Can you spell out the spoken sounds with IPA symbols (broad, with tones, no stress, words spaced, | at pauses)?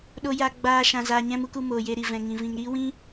ɗo˦ ja˦ɡ͡baː˦ʃã˧ zaː˧ɲɛ̃˦mu˦ku˧ moː˨je˧ɾi˨ vɛ̃˨ŋĩ˨ vĩ˨ŋɾiː˦wĩ˦